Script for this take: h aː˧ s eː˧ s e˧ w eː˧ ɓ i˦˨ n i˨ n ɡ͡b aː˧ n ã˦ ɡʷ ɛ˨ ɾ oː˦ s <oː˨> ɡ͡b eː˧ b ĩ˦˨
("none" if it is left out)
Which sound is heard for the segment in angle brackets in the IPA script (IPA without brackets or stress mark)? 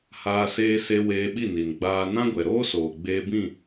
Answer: oː˨